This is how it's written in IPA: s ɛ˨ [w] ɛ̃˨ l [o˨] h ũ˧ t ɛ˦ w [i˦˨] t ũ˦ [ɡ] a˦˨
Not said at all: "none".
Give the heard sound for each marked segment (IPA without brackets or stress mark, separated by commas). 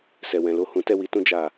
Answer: w, o˨˦, i˧, d͡ʒ